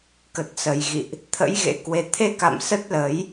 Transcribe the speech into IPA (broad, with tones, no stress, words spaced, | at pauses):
kə˨˩t̚sə˨˩jɣḭ˧˨ʔ | t̪ʰə̰˧˥j ɣḛ˧˥kwe˨˦ t̪ʰe˧ka̰˧˨m sə˦˥t̚lə˨˦j